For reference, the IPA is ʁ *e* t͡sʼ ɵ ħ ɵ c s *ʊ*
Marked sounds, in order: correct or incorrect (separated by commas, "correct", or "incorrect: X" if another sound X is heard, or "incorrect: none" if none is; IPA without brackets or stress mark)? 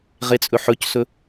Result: correct, incorrect: ɵ